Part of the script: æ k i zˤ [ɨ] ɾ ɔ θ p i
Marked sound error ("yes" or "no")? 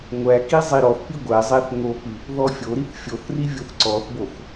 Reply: yes